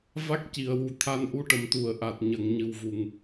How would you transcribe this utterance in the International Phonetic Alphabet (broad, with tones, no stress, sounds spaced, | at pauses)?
v a˦˥ k̚ c i˨˩˨ ə̯ w u˨˩ t̪ʰ a˧ n ʔ u˧˥ ʈ ə˨˩˨ m t̪ u˨˩˨ ə̯ ʔ a˨˩ t̚ ɲ ə˨˩˨ ŋ ɲ ɨ˨˩ w v u˨˩ ŋ